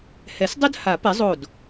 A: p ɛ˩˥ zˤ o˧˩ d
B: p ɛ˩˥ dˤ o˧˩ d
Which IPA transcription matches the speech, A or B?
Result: A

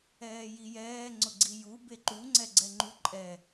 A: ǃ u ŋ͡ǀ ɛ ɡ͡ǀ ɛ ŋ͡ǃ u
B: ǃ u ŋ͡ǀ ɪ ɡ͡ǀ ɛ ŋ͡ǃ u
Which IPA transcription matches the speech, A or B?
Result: A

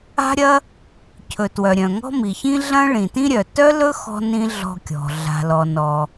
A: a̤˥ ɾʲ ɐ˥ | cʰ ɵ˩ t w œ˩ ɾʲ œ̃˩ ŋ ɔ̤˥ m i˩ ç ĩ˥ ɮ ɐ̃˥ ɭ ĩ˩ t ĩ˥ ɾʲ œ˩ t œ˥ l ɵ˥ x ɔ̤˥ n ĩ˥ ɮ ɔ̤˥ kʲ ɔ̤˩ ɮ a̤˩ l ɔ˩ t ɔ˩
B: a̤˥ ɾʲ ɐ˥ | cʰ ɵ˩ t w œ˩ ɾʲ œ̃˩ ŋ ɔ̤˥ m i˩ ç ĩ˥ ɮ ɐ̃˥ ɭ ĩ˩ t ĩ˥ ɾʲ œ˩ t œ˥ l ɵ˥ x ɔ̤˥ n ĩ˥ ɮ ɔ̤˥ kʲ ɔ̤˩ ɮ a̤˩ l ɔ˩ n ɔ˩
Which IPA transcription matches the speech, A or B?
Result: B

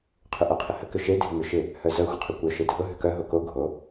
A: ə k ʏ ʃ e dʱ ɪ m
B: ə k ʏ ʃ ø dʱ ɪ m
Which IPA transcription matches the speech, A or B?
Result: A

